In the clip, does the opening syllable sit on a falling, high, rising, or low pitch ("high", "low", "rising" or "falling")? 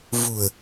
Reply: low